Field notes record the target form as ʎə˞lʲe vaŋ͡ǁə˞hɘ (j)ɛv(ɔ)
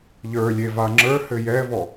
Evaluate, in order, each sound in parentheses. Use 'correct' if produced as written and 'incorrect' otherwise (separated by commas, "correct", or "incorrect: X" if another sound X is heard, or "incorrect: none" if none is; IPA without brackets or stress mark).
correct, correct